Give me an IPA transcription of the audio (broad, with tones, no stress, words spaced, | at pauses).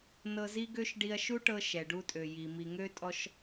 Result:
nɤ˧zi˦ɡø˦ʃ ɖi˧ɐ̯ʃu˦ʈɤ˧ ʃɛ˨ɖu˧tʼø˨ji˨ mi˨ŋø˧tʼɔ˧ʃ